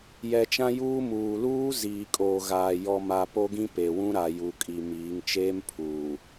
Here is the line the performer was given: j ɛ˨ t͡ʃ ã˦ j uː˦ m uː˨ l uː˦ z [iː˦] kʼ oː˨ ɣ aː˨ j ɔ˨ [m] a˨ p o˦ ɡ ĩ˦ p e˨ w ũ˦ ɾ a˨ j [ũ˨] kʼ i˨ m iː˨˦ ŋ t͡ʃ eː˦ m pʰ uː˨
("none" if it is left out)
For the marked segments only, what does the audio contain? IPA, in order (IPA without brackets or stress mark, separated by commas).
iː˨, m, u˨